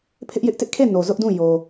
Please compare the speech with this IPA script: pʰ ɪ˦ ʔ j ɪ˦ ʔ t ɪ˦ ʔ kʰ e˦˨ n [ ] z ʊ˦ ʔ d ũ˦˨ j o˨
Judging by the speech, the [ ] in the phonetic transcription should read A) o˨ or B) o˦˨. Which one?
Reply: A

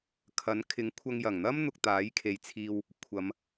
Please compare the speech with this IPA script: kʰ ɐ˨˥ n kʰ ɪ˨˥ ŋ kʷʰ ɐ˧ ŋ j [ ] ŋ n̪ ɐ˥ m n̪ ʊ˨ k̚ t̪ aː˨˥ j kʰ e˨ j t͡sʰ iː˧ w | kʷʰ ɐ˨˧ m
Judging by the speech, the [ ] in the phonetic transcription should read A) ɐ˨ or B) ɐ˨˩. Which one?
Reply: B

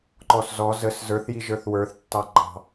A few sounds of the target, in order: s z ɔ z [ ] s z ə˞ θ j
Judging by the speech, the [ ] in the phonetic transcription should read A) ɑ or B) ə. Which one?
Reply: B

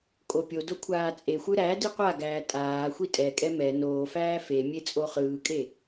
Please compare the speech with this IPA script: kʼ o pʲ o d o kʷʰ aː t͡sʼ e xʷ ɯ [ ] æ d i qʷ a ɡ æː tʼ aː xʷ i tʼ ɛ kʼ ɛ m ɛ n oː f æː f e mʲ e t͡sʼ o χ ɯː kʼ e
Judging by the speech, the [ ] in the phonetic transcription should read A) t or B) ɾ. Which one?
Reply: B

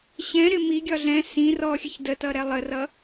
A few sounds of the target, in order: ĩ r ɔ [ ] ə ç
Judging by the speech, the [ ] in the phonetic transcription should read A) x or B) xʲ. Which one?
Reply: B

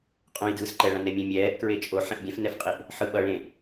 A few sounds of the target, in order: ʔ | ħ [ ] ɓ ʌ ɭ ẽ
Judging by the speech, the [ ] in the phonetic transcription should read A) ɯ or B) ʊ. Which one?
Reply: A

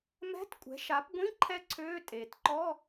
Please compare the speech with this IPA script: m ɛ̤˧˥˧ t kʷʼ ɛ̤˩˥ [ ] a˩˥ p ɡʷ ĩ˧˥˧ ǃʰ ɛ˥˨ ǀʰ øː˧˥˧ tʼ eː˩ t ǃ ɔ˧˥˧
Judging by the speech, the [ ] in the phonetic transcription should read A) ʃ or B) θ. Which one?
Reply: A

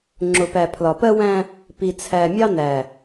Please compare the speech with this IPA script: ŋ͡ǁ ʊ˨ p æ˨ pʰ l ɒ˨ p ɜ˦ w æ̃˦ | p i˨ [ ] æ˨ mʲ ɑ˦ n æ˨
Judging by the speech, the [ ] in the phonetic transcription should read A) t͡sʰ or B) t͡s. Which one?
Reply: A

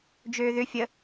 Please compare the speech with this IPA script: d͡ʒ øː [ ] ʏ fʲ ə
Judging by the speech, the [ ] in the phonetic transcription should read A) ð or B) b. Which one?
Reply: A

